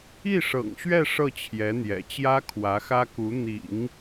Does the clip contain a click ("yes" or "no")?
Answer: no